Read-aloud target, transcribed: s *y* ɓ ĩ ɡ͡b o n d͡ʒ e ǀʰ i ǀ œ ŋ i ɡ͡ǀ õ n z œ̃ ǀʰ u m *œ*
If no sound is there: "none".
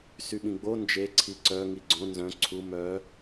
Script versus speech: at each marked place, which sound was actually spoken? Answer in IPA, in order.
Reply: y, œ

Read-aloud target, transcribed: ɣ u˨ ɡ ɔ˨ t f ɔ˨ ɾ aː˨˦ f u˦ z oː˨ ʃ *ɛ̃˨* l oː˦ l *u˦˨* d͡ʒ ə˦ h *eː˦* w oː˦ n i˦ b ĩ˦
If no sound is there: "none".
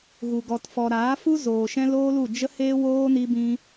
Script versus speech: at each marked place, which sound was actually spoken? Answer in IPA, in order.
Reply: ɛ̃˦, u˦˨, eː˦

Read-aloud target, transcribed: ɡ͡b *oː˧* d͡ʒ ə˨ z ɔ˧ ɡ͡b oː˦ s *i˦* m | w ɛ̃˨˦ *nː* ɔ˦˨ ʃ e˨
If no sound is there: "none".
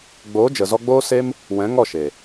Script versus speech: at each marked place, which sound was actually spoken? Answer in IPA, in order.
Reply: oː˨˦, e˦, ŋ

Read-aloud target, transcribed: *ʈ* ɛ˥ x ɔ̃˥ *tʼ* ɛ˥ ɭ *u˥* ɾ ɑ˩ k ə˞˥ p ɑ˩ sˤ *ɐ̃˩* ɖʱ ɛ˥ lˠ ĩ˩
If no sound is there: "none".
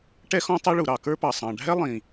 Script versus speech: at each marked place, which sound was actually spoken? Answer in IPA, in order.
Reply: ʈ, tˤ, u˩, ɑ̃˩

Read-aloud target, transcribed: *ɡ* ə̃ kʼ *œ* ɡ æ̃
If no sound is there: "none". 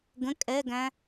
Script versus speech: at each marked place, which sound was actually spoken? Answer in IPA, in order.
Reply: ɡ, ɛ

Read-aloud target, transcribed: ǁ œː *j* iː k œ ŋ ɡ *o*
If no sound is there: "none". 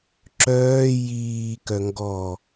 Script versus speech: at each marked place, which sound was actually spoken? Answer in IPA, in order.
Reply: j, ɔ

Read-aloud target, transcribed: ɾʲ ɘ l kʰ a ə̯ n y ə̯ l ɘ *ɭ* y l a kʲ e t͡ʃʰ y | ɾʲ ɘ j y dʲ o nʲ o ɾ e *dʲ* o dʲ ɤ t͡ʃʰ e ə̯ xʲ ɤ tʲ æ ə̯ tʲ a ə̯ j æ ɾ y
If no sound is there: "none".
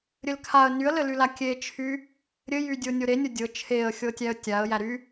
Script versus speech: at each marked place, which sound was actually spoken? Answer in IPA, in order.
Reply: l, nʲ

